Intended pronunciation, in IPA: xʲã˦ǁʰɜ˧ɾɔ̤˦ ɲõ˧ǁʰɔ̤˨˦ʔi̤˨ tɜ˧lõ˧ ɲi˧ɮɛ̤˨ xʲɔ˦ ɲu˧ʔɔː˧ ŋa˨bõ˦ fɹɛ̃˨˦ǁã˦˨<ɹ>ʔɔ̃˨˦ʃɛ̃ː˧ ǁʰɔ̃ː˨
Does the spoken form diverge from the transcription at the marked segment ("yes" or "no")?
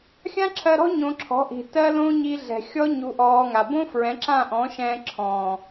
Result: yes